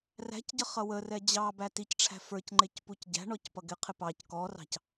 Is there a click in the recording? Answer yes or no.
yes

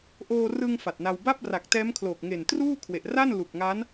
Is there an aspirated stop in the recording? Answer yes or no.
yes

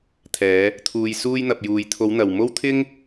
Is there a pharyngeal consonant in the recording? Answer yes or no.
no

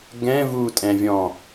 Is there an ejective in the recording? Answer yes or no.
yes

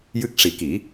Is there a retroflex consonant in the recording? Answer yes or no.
yes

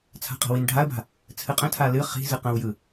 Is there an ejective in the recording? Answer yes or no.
yes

